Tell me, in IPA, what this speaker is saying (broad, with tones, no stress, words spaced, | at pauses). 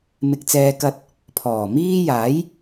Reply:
mɪ˧k̚t͡sɛː˧ kɐ˧t̚ | pʰɔː˨˩miː˥ jaː˨˥j